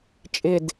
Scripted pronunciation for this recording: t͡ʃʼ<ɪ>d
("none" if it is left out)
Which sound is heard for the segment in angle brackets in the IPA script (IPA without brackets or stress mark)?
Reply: ɪ